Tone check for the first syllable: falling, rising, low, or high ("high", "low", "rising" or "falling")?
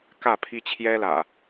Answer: falling